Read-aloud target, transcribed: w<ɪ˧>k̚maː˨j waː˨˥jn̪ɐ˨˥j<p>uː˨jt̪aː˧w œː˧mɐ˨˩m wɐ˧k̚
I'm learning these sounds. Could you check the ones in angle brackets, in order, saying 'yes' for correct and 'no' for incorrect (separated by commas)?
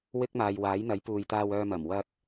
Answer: no, yes